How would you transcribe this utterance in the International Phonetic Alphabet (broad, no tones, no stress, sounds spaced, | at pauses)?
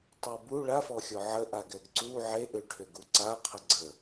tˤ e b u ɭ a f ɔ xʲ ɔ ʕ ə ʔ a ɡ ɛ ɡ ǀ u ʕ e ʔ ʏ ʈʰ ʏ ɡ u ǀ a qʰ ə ɡ͡ǀ ə